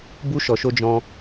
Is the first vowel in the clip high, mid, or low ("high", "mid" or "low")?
high